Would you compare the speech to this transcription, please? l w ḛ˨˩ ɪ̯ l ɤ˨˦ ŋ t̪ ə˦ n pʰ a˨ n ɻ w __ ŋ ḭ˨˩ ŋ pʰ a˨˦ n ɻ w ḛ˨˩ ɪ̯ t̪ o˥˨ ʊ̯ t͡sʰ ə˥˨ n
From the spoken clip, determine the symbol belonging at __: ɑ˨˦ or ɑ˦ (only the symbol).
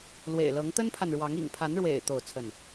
ɑ˨˦